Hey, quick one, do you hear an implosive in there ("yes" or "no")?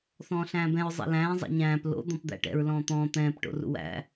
no